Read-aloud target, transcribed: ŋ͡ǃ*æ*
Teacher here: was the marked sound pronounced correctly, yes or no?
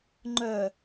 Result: no